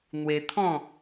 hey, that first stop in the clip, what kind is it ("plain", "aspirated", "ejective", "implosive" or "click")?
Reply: aspirated